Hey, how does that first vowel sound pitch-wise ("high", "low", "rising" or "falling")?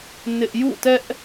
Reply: high